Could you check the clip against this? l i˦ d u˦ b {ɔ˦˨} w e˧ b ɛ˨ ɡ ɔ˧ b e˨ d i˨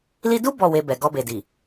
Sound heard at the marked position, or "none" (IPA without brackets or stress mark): ɔ˦˨